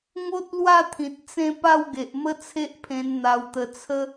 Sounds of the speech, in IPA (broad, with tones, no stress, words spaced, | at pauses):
ŋo˦t̚lwa˥˧t̪ʰĩ˨t̚ t͡sẽ˥˧ pa˥˧wɡe˨ʔmə˦ t͡sʰe˦ʔpʰẽ˧n n̪a˧wt̪ə˧ t͡sʰə˦